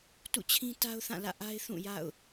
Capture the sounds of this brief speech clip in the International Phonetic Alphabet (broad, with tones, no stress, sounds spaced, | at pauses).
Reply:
t ṵ˦˨ t͡ɕʰ ĩ˦ t a˦ ʊ̯ θ ã˦˨ l ä̰˦˨ ʔ a˦ ɪ̯ θ ũ˦˨ j a̰˦˨ ʊ̯